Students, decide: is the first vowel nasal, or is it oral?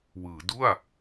oral